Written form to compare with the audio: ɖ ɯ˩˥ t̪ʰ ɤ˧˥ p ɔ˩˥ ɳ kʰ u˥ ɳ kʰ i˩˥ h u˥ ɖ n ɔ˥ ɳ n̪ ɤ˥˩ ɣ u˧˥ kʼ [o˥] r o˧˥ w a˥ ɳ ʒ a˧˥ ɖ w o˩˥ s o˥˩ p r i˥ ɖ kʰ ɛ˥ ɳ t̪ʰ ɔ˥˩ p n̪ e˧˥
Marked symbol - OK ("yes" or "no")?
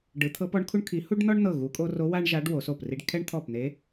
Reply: yes